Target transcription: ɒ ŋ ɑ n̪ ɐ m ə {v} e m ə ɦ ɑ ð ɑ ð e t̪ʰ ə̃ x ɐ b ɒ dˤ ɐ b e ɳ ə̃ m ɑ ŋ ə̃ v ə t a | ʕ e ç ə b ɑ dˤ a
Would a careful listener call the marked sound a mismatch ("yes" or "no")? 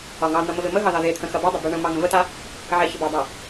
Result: no